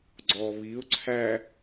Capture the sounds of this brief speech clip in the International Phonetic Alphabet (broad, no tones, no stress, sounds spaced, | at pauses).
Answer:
ɡ͡ǀ ɔ β i ʊ̯ ǀʰ æ